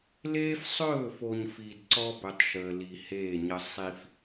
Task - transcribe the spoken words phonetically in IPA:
l eː˦ f sˤ ɵː˦˨ f o˨ ɲ f i˨ d ǀ ɔ˦ b ɵ˨ tˤ ʃ əː˨ l i˨ h eː˦˨ ɲ ə˦ sˤ i˦ f

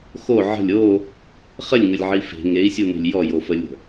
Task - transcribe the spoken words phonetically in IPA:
x o ʕ ə̤ lʲ o | χ ə lʲ ŋ ə lʲ ʕ i f e̤ ŋ e i̯ sʲ u n e̤ lʲ j ɔ j o f ə lʲ ə̤

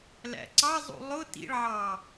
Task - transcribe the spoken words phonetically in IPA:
l æ̰ ǀ ɑ zˤ ṵ lˠ ʊ t ḭ ɭ ʕ ɑ

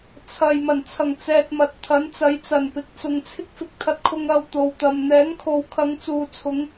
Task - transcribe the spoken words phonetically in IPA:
t͡sʰ ɐ˨ j m ɐ˨˩ n t͡sʰ ɐ˨˩ ŋ t͡s ɛː˨ t̚ m ɐ˨ t̚ t̪ʰ ɐ˨˥ n t͡s ɐ˨˧ j t͡s ɐ˨˩ n p ɪ˨ k̚ t͡s ʊ˨ ŋ t͡sʰ ɪ˥ k̚ f ɪ˨˥ k̚ t̪ʰ ɐ˧ t̚ kʰ ʊ˧ ŋ ɐ˧ w t̪ o˨ w t̪ ɐ˨ m n̪ ɛː˨˥ ŋ kʰ o˨ w kʰ ɐ˨˧ ŋ t͡s uː˨ t͡sʰ ʊ˨˧ ŋ

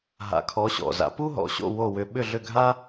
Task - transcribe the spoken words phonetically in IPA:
ɦ a̰˩˥ kʰ ɔ˩˥ ɕ ɔ̰˩ z a̰˩˥ p u˥ ɦ ɔ̰˩ ɕ o̰˥˩ w o˥˩ w ʏ˧ ɓ ʏ˥˩ ɮ ʏ˥˩ ɡʱ a˥

